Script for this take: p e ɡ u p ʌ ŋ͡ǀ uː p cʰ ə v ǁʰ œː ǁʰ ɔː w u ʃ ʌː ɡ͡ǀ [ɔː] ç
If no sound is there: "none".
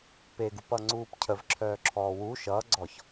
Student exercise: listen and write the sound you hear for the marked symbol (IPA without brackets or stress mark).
ɔ